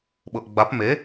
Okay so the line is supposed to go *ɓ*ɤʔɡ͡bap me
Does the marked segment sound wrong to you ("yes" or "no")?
no